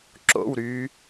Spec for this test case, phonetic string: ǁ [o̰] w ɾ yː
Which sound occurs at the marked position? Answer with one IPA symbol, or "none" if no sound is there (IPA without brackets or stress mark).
o̰